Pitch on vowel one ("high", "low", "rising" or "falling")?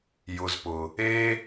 low